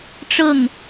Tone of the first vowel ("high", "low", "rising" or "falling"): falling